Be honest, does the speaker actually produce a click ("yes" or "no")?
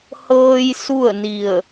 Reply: no